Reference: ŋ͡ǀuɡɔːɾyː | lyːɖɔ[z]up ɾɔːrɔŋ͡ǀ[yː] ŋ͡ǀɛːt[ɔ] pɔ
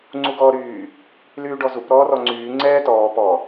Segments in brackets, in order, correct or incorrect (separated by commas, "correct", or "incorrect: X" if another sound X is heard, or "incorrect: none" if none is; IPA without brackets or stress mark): correct, correct, incorrect: ɔː